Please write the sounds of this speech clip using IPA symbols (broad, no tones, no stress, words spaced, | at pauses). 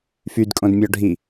fydkʼõdmʲɔɖʱi